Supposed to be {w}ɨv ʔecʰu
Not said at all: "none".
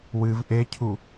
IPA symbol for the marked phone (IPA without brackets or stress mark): w